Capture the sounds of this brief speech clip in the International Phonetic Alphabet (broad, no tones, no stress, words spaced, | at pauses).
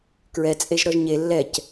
kɹɛ t͡sʼeʒɾɔʒɲe lːɛc